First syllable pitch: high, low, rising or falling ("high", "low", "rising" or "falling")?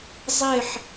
falling